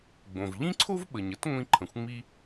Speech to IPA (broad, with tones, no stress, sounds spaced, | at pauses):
ɡ͡b õ˩ v ʎ ĩ˥ ǀʰ o˥ v ɓ ə˩ ɲ ə˥ t ŋʷ ĩ˧ ǃʰ ə̃˩ xʷ ŋ͡m i˧